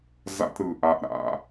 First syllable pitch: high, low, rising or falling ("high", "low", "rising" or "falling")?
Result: high